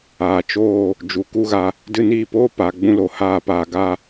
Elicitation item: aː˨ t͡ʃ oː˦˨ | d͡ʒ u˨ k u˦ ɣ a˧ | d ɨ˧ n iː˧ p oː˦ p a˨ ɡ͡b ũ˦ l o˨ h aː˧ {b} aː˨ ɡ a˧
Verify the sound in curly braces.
incorrect: p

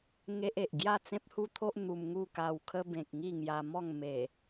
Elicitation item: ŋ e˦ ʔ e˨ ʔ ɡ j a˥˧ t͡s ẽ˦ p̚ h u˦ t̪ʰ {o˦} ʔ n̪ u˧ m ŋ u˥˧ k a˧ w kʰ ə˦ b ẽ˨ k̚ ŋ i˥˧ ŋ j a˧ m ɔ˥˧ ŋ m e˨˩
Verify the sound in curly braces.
correct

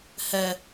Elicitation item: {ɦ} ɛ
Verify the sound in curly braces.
incorrect: h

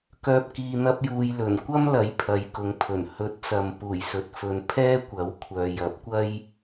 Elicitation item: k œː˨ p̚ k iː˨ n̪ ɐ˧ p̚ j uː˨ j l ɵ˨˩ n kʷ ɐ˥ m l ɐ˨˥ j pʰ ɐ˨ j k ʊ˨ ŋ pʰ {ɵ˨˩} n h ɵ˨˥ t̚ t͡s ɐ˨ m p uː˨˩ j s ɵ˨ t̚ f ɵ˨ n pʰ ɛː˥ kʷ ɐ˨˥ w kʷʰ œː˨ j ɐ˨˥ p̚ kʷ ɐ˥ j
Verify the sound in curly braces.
correct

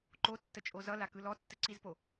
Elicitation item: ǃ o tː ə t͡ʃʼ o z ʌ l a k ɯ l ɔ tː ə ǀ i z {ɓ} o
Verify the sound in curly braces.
incorrect: p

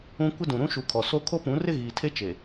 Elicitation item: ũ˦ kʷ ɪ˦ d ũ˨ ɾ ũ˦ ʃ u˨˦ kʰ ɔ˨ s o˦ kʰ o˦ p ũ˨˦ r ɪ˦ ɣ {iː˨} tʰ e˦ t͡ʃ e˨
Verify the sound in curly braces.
correct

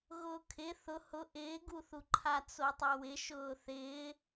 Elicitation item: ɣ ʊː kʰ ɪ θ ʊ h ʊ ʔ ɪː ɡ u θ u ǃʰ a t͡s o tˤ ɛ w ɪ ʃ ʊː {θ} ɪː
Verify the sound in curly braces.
correct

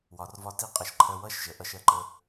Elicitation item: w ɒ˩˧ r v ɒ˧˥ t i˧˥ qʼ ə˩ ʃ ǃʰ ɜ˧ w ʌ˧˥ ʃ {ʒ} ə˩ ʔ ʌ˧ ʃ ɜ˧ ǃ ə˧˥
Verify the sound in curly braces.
correct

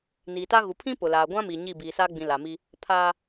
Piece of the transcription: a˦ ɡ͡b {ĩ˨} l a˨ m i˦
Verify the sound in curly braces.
correct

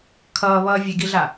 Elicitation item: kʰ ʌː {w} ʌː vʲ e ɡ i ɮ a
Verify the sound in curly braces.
incorrect: β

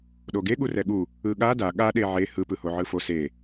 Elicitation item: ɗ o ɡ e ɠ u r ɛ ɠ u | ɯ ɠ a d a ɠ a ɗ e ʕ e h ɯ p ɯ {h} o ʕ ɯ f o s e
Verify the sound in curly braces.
correct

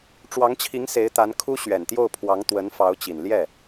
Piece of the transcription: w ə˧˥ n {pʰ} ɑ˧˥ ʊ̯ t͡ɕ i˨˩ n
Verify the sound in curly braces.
incorrect: f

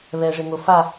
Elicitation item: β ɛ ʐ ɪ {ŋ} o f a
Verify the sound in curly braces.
correct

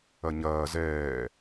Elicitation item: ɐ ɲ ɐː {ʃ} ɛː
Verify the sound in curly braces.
incorrect: z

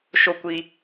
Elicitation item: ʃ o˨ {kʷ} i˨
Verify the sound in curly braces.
correct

